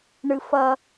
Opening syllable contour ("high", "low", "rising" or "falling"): high